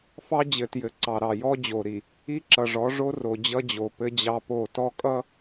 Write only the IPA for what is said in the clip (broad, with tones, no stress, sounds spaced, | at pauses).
f ɑ˦ d͡ʑ ɘ˨ t j ɘ˨ ǀ ɑ˨ ɾ ɑ˨ j ɔ˦ d͡ʑ o˨ ɾ i˨ | i˦ ǁ ʌ˨ ʐ ɔ˨˦ ʐ o˦ r o˨ d͡ʑ ʌ˦ d͡ʑ o˨ p ɘ˦ d͡ʑ ɑ˦ p o˦˨ t ɔ˦ kʼ ʌ˦